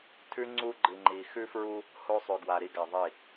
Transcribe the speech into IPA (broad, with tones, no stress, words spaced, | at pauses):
tʰʉ˦ ŋ͡ǀu˦ɡ͡ǃɨ˨ŋ͡ǃi˨ xʉ˦fɹu˦ | ho˦sˤʉ˨ɡwa˨ɾi˦ ɡa˨ðˤi˦˨